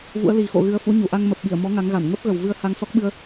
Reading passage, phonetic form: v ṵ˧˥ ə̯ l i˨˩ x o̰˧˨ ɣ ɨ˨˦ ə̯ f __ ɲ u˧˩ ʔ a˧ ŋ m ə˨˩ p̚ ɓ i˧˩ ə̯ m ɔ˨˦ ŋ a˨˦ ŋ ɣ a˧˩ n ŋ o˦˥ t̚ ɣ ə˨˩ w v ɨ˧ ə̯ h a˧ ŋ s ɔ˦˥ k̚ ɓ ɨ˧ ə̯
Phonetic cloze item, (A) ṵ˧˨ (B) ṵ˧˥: B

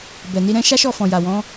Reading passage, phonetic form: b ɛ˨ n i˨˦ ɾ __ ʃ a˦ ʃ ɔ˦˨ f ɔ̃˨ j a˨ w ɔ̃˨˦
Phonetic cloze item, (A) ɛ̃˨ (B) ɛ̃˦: B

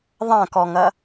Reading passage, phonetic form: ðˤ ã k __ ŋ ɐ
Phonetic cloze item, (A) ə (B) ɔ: B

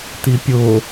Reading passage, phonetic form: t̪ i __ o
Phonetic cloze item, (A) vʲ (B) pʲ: B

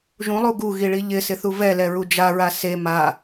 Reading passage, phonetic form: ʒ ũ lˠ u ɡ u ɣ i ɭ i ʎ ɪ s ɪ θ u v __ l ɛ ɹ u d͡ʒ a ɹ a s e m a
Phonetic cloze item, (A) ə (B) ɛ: B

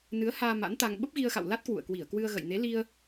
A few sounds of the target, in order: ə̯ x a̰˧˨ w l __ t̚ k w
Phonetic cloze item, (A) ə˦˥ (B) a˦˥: B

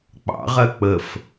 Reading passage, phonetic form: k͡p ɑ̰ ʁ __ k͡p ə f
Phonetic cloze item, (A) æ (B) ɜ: B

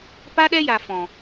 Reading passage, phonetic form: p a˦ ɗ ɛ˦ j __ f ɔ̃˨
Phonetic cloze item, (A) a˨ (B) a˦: A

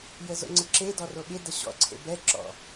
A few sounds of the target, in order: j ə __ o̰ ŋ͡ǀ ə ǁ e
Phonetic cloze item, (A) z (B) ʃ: A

